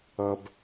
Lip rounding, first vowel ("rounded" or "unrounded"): unrounded